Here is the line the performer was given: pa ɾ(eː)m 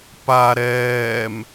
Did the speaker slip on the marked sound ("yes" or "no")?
yes